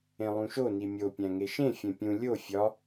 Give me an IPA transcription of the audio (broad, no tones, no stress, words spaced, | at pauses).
ẽlˠũʃo nimʲo pʲæ̃ŋeʃẽ fʲẽpʲũ lʲo fʲɒ